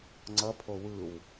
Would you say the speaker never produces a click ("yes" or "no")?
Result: no